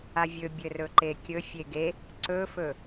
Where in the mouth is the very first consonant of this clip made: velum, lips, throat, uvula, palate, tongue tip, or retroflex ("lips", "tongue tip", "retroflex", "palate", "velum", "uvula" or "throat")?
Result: lips